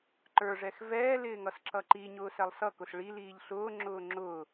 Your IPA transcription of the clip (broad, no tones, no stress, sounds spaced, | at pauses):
ǃ ə˞ ʐ ɛ x v ɛː l ɪː ŋ ʌ s ǁ ʌ ǃ i ɲ ʊː s ɛ lˠ s ʌ k ʊ s ɭ i l iː ʎ ɬ ʊː ŋ͡ǁ ʊː ŋ͡ǁ ʊː